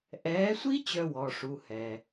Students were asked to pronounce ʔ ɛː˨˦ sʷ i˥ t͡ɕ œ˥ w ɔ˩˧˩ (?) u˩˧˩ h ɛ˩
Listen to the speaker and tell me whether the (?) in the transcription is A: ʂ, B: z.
A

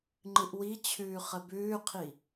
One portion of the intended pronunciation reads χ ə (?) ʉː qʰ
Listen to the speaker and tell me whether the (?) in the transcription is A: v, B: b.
B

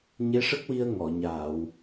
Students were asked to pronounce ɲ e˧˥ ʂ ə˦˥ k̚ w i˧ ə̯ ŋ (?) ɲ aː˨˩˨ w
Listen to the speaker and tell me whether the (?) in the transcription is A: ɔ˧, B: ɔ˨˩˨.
B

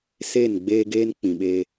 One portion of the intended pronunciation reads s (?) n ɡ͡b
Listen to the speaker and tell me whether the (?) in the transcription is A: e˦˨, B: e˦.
A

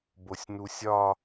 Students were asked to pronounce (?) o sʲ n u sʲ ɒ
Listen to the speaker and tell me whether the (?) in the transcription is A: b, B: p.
A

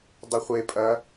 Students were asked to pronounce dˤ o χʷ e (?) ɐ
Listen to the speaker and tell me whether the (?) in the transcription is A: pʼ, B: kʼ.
A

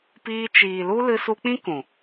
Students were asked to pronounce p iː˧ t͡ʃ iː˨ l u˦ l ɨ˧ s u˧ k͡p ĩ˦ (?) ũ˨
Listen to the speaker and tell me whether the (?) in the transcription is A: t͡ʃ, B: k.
B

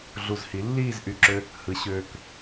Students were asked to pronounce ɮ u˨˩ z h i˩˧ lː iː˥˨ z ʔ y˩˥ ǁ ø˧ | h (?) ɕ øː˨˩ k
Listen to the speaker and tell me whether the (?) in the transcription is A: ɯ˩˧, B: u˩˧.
A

